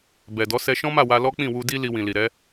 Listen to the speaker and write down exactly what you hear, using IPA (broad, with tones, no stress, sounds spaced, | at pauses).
b ɛ˨ d ɔ˨˦ s ɛ˧ ʃ ɔ̃˦ m a˦˨ w a˧ l ɔ˦ k͡p ĩ˦˨ w u˧ d i˦ l i˧ w ĩ˨ l i˨ ɾ ɛ˨˦